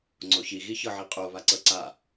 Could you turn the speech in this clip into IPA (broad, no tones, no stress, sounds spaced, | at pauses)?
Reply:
ŋ͡ǀ o ç i ɣ i ç ɤ ʕ i qʼ o β a ǀ ɤ ǀ a